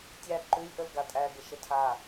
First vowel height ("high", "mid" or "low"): low